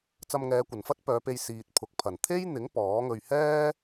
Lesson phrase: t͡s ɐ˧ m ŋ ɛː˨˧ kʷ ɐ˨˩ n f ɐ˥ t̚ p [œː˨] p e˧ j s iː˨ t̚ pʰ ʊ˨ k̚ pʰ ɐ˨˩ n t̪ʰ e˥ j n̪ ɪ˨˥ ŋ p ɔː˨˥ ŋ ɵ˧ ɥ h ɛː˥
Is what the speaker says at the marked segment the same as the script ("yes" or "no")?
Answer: no